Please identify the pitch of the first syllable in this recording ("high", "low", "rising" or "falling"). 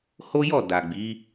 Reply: high